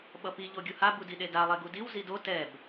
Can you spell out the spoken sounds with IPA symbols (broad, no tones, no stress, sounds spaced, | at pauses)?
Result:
ɓ ʌ p i ʎ o ɡʲ u h a b u d i ɗ e d a lˠ e ɡ u d i w z i d o t ɛ b